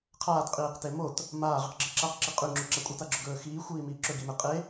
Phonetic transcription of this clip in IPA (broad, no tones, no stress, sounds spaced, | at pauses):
qʰ aː t qʼ iː q t e m o t | m aː ʁ ɨ q ɡ͡ǁ i ǁ a q ǁ e qʼ ʉ ŋ͡ǁ ʉ ǁ a kʷʼ e t a ɡ͡ǁ ɵ ɡ ɵː x iː xʷ iː m iː ǁ ɵ ɡ i m e qʼ e